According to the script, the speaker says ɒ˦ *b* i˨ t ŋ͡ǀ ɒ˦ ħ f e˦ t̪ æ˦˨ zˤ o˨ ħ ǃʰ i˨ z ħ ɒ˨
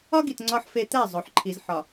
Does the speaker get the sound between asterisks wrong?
yes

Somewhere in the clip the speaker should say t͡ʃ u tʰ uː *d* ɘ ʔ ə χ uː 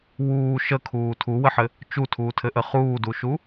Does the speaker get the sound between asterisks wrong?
yes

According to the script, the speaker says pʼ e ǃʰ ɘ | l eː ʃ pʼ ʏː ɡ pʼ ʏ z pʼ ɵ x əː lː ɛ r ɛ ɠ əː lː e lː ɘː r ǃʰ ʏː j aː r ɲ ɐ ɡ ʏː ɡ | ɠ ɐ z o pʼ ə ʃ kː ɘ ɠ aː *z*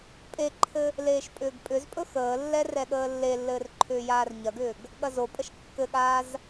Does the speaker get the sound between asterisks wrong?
no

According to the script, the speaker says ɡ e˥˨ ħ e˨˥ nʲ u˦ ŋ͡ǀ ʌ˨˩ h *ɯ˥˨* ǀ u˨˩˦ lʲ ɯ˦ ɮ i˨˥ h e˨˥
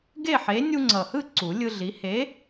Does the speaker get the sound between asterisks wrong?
no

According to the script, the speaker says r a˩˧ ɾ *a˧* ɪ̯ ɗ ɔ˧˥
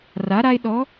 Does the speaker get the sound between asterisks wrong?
no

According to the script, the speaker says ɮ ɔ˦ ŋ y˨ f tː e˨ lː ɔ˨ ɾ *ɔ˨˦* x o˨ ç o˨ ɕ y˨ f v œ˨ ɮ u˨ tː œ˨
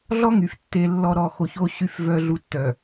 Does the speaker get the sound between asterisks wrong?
yes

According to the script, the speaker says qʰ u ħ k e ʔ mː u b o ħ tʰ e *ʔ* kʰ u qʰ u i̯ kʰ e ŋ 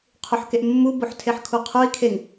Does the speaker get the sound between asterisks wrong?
yes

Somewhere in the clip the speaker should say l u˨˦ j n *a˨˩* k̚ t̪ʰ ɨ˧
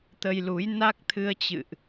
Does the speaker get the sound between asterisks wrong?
yes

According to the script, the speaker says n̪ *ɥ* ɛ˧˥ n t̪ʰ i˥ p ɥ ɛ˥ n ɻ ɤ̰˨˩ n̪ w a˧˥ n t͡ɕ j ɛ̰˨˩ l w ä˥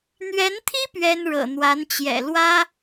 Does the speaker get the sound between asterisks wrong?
no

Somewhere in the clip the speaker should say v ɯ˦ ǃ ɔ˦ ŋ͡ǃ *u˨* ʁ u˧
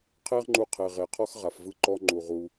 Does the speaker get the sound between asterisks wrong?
no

